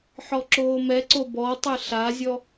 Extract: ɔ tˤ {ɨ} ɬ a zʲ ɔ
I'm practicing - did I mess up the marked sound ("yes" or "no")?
no